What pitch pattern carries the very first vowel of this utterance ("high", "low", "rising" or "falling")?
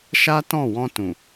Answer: high